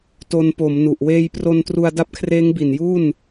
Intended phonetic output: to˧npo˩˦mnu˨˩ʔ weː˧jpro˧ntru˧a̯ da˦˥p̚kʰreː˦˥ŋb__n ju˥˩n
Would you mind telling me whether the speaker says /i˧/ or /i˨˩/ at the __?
i˨˩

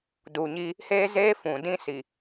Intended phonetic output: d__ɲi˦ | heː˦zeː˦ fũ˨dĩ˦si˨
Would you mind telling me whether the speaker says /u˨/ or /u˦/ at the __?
u˨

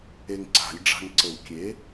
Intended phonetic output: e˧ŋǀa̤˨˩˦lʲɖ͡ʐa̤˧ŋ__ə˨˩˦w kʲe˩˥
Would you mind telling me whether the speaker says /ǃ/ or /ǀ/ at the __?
ǀ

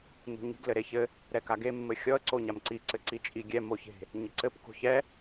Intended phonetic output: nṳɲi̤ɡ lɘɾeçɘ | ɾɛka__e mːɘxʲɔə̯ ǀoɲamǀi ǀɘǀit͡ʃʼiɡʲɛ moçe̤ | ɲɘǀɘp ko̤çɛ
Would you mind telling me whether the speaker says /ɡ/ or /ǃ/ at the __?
ɡ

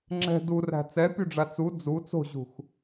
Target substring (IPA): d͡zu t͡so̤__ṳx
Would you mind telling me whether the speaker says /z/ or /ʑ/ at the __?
ʑ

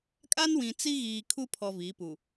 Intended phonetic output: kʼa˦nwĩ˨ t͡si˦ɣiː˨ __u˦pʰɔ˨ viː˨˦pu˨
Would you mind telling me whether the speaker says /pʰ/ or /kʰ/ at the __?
kʰ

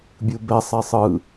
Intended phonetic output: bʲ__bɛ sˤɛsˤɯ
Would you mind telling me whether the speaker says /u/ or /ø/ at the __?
u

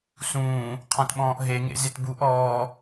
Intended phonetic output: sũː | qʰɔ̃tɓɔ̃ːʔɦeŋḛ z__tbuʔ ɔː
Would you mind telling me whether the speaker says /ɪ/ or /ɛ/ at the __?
ɪ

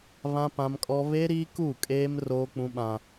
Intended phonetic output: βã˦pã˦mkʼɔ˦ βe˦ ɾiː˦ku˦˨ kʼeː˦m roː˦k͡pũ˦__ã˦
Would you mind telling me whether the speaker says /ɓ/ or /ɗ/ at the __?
ɓ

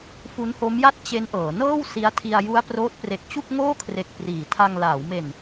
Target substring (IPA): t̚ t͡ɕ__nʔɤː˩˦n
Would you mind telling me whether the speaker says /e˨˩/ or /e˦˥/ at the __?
e˦˥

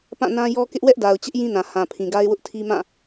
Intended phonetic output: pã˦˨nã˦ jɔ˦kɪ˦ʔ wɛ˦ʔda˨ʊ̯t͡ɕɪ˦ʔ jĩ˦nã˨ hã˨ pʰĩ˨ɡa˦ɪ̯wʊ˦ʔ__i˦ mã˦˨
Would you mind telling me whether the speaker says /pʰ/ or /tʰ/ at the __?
tʰ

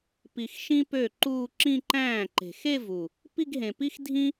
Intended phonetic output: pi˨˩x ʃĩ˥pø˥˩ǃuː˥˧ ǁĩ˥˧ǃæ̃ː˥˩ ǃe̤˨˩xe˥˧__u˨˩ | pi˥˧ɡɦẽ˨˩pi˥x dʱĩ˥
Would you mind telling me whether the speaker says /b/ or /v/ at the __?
v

